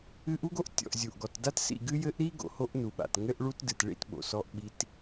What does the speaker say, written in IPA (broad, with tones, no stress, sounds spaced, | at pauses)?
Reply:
ɨ˦ ʔ u˦ ɡ o˦ ʔ tʲ ɔ̰˨ ʔ zʲ u˨ ʔ ɡ ɔ˨ t d a˦ t s ḭ˦˨ ɡ ɨ˦ j ɘ˦ ʔ ɾ i˦ ɡ o̰˨ h o˦ ʔ n u˨ ɓ a̰˨ t ŋ ɘ˦ ʔ ɭ u˦ t d ɨ˨ t ɭ ḭ˦ t ɓ o̰˨ s ɔ˦ ʔ ɓ i˦ t